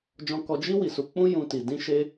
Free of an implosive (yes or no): yes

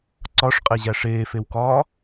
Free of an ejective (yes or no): no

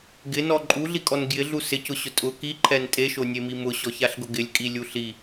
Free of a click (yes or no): no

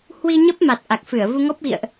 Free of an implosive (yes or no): yes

